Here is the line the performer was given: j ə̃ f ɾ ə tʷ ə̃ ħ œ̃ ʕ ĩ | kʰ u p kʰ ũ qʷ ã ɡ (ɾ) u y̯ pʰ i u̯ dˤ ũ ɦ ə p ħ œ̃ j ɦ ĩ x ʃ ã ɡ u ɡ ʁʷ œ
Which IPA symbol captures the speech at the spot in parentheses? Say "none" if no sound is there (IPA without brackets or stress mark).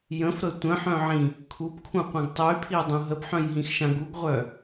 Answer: tˤ